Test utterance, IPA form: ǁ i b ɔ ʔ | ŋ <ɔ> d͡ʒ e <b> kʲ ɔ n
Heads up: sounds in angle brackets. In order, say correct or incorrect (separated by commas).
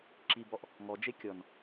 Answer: correct, incorrect